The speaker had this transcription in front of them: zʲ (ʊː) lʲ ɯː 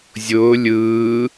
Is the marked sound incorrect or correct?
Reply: correct